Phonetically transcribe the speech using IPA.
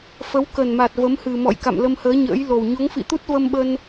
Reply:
fə˨˦wkə˨˩nma˨˩t̚ və˨˦mhɨ˨˩mɔ̰˧˨j ka̰˧˨mlə˧mhəː˨˦ ɲə̰ː˧˥jlo˨˩w ɲo˨˦ŋfḭ˧˨t̪u˦˥t̚ və˧mɓə˧n

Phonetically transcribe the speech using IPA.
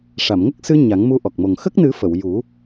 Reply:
ʂa˨˩˨mŋə˦˥k̚sɨ˧ ɲa˨˩˦ŋmu˧ ʔɔ˨˩k̚mo˨˩ŋ xə˦˥k̚nɨ˨˩˦ fə˨˩˨wju˨˩˦

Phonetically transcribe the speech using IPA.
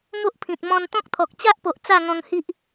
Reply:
ŋo˦ʔpʰĩ˨t̚ mɔ̃˧nt̪ɔ̃˦k̚t̪ʰɔ˨k̚ t͡ɕa˦ʔpo˨ʔ t͡sa˥˧ŋɔ̃˧ŋhi˦ʔ

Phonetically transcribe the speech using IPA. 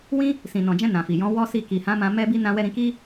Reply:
wĩ˦ | sĩ˨nɔ̃˨d͡ʒɛ̃˧ nã˨fi˨jɔ̃˨˦ wɔ˦si˦˨ ki˨hã˨˦mã˧ mɛ˦bi˦ nã˦wɛ˦ ɾĩ˧ki˦

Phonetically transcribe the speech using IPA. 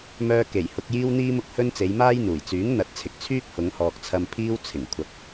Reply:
mœː˧ke˨˩j hʊ˧k̚jiː˥w n̪iː˥mʊ˥k̚hɵ˥n t͡se˨˧jmaː˥jn̪uː˨˩j t͡syː˨˥ŋn̪ɐ˨˥t̚t͡sʰɪ˨k̚t͡sʰyː˥k̚ hʊ˨˧ŋhɔː˨k̚t͡sʰɐ˧m pʰiː˥wt͡sʰɪ˨˩ŋkʷʰɐ˨˥k̚

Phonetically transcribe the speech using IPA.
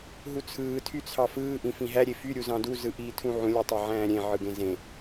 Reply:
ɦut͡sʰɯː tʰyt͡sʰɑfɯː ʔĩfĩɦæ ɾʲefy ɾʲuzɑ̃du zɯʔiːtʰũʕũ lʲutˤæʕæ̃ːɾʲẽ ʕɯɡẽzẽ

